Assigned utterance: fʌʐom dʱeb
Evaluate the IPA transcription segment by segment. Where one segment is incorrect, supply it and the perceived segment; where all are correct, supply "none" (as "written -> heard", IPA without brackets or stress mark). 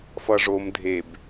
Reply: none